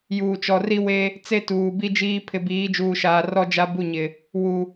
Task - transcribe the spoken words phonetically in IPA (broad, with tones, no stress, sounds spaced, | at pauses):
j uː˨ t͡ʃ ɔ˨ r i˦ w e˦ | t͡s e˦ t uː˨ b i˦ d͡ʒ iː˦ pʰ ɪ˨ b iː˨˦ d͡ʒ uː˨ ʃ aː˨ r ɔ˦ d͡ʒ a˦ b u˦˨ ɲ ɪ˨ | w u˨